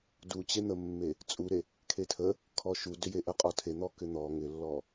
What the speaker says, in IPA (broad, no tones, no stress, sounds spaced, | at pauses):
d u t͡ɕ e n̪ ə mː e | t͡sʼ u ɾ e | kʰ e tʰ ə | kʰ ɔ ʃ u d ʏ j e ʔ ə qʼ ɔ tʰ e n̪ ɔ k ʏ n̪ ɔ ŋ ʏ lː ɔ